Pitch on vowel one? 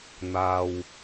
low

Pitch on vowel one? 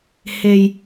low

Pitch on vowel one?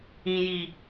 low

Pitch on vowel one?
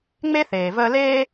high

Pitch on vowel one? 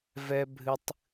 high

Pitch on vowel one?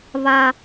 high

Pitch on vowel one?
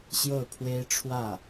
falling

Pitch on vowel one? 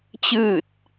falling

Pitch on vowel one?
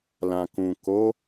low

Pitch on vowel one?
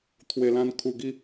low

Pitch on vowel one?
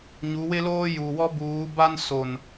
rising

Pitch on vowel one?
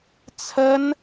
high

